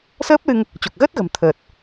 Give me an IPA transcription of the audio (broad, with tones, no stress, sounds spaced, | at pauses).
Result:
s əː˦˥ p̚ l ɨ˧ ŋ | t͡ɕ o˨˩ k̚ ɣ əː˦˥ t̚ ɣ ə̤˨˩ m t̪ʰ əː˨˩ t̚